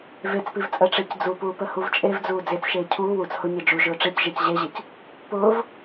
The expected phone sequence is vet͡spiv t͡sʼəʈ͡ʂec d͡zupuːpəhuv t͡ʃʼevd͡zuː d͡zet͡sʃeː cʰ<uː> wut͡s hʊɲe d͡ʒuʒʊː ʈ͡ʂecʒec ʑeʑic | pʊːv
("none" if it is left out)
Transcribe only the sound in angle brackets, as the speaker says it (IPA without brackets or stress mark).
uː